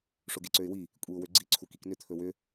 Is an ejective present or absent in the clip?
present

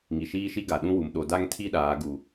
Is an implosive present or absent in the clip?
present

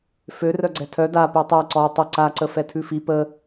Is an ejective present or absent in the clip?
absent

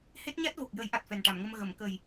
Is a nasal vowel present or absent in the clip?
absent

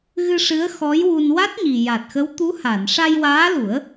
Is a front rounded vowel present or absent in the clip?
absent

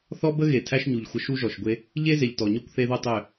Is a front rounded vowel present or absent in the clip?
present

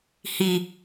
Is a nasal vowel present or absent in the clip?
absent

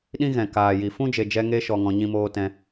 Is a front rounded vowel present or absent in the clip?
absent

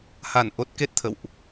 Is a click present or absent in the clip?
absent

